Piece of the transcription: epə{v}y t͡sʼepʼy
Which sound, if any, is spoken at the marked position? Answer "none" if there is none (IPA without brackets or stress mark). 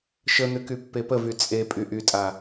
v